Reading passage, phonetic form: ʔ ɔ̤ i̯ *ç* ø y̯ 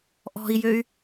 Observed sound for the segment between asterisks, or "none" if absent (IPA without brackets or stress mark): j